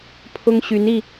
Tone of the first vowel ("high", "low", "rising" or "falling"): high